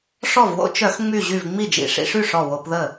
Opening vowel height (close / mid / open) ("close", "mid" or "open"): mid